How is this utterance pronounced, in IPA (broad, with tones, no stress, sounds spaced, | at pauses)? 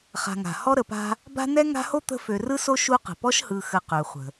χ a̤˨ ŋ a̤˩ h ɔ˦ ɾ ə˨ p a̤˦ | b a̤˦ n ɛ˥ ŋ a̤˦ h o˥ t̪ ə̤˦ f ø˨ r ɯ˥ s o˥ ʃ u˦ q ə̤˩ p ɔ˥ ʃ h ɯ˨ x ə˨ q ø˩ χʷ ə̤˩